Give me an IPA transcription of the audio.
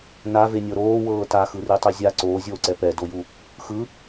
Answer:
n a v e nʲ ɤ ɾ oː w ɤː t a x ɯ r i tˤ i zʲ a ǀ oː zʲ oː ǀ ɛ p ɛ d o j u | x ɯ

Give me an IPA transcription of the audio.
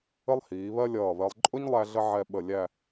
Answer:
ə˥ lˠ h iː˩˧ β ɜ˥ lʲ ʌː˧˩ β ɜ˧ lˠ ǃʼ ʊ˥ ɲ lˠ æ˥ ɮ ə˥ ʕ ɛ˧ ɓ ə˧˩ lʲ æ˥˧

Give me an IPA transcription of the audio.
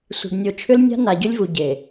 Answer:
sʷ i̤˨ ɖ nʲ o˨ t͡ʃʰ ʏ˦ l nʲ a̤˦ n a˨ ɟ ʏ˦ lʲ v u˨ ɟ e˨

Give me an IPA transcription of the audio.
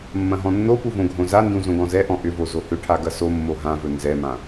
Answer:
mː ɐ̃ ɦ ɔ̃ nː o p u v õ ɡʱ õ z a n d ũ z õ ɡ ɔ̃ z ɛ ʔ ɔ̃ ʔ ʏ v o z o h ʏ ʈʰ a ɡ ɐ s o mː o ɦ ã v ɵ n z ɛ m ã

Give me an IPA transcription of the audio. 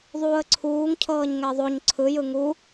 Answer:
ðˤ uː ə̯ ǀʰ uː ŋ cʰ ɤː ɲ ŋ ɛ ðˤ o ɲ ǀʰ ɯ j ɯ ŋ u

